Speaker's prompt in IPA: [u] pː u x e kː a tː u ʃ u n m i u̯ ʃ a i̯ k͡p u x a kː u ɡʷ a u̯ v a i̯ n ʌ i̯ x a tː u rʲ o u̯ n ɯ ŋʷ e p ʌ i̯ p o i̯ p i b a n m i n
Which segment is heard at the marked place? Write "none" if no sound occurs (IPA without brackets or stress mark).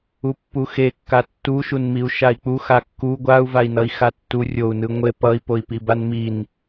u